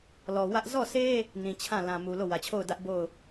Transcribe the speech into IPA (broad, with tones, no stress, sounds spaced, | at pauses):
l ɔ˨ w ä˦ ʔ z ɔ˦˨ s e˦ | n ĩ˨ t͡ɕʰ ã˦˨ l ã˨ m u˨ l o˦˨ w ä˨ t͡ɕʰ o˦˨ ʊ̯ d ä˦ ʔ b o˦˨ ʊ̯